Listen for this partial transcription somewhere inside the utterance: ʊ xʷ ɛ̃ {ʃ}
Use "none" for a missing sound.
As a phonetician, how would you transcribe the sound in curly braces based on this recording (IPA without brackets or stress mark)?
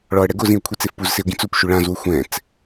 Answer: t͡s